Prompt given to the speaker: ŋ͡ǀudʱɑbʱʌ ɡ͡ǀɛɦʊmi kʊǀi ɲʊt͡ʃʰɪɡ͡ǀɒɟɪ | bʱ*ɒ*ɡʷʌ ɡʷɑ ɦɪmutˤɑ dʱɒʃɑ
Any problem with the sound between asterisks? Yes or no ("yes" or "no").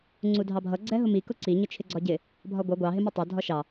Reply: no